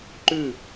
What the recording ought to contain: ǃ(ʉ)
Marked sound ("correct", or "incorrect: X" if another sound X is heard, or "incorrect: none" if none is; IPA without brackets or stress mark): correct